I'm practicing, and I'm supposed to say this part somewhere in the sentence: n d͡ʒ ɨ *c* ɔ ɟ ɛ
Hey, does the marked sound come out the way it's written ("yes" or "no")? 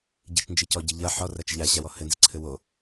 yes